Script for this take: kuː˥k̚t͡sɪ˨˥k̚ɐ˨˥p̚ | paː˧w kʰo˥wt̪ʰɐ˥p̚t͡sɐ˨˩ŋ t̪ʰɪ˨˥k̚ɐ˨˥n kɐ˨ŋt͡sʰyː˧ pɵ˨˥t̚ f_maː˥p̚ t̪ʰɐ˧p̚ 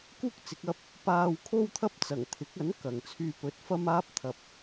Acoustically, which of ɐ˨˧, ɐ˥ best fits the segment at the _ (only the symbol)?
ɐ˥